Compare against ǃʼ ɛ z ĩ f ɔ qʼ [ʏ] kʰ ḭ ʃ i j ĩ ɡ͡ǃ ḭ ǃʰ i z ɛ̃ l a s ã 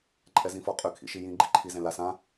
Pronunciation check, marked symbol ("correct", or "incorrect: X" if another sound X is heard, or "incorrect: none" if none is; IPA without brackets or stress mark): correct